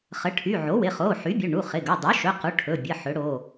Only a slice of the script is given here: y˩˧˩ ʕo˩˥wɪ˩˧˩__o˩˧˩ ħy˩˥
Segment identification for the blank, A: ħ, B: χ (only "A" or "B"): B